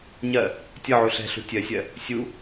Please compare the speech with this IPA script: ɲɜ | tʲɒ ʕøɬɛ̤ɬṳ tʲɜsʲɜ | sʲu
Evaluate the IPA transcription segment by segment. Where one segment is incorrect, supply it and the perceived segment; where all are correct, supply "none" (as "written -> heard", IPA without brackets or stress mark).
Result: ø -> u